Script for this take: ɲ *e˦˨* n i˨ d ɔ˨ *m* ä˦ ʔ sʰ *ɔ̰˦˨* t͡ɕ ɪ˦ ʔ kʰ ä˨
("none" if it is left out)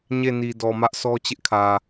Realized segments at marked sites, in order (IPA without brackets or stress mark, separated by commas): e˦˨, m, ɔ˦